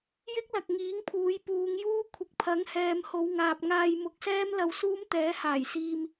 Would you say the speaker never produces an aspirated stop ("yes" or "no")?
no